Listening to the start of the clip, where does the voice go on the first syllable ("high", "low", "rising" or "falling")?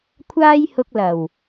high